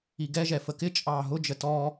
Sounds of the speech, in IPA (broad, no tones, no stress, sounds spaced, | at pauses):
i ɡ ɛ ʒ ɛ f ə k ɪ t͡ʃʼ ɑː ɦ ʊ d͡ʒ ə t ɔ